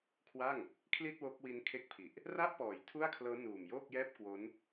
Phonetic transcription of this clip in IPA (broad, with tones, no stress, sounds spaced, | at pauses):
kʰ w a˥˩ ŋ | kʰ l i˥˩ t̚ w o˦˥ k̚ w i˦˥ n kʰ e˦˥ k̚ pʰ i˨˩ ʔ | r a˥˩ ʔ p ɔː˨˩ j tʰ u˥˩ a̯ kʰ l ɤː˦˥ n uː˨˩ m j oː˥˩ k̚ j ɛː˥˩ p̚ k w o˦˥ n